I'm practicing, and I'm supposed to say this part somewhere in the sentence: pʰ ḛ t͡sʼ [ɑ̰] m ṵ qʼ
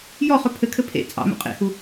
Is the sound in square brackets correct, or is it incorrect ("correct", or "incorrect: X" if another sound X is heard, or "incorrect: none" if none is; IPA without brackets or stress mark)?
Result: correct